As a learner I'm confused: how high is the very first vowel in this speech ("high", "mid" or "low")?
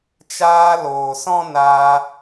low